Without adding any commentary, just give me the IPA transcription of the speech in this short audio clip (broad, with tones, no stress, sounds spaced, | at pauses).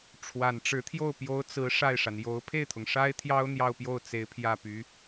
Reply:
ʈ͡ʂʰ w a˨˩ n ʈ͡ʂ ɻ̩˧˥ t̪ʰ j o˥˩ ʊ̯ p j o˧˥ ʊ̯ t͡s ɹ̩˧˥ ʂ a˥˩ ɪ̯ ʂ a˩ n j o˧˥ ʊ̯ pʰ e˥˩ ɪ̯ t̪ʰ ʊ˩ ŋ ʂ a˥ ɪ̯ t̪ʰ j ɑ˥ ʊ̯ n̪ j ɑ˥˧ ʊ̯ p j o˥˩ ʊ̯ t͡s e˧˥ ɪ̯ pʰ j ä˥˩ p y˧˥